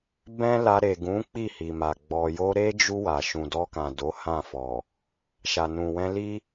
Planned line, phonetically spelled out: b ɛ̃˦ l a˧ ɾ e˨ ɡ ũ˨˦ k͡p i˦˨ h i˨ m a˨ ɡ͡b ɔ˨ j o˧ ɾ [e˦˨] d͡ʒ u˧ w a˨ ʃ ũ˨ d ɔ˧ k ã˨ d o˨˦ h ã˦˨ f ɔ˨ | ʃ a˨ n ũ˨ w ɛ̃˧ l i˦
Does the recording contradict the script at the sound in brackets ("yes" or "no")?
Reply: yes